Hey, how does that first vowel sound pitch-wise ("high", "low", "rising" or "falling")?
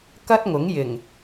high